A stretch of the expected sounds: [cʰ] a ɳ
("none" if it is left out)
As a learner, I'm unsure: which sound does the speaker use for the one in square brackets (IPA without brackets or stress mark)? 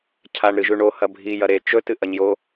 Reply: cʰ